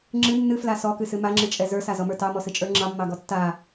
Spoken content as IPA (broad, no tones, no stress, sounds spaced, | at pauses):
ŋ͡ǁ ɨ nː ɨ f l a s ɔ k ɨ s ɨ m a ŋ͡ǁ ɨ t͡ʃʼ ɛ z ə˞ s a z ɔ m ə˞ t ɑ m ɔ s ɨ t͡ʃʼ ə˞ ŋ͡ǁ ɑ mː ɑ ɡ ɔ tː a